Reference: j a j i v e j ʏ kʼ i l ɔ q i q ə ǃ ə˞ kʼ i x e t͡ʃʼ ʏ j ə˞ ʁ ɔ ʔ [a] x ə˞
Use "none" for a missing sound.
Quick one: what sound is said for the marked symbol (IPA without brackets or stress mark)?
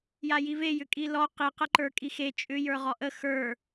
ə